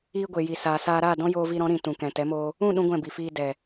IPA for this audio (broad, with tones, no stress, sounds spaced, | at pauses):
iː˧ ɡʷ e˨ j i˨ s aː˨ s aː˧ ɾ aː˦˨ d ɔ̃˦ j oː˧ v i˧ ɾ ɔ̃˨˦ ɾ ĩ˨ t ũ˨ k ɛ̃˨ t ɛ˨˦ m oː˧ | ũ˦˨ ɗ ũ˦ ɡʷ ɛ̃˦˨ b i˨ f iː˧ d ɛ˨